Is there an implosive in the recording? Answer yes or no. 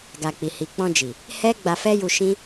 no